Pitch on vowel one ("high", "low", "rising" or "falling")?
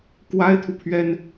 high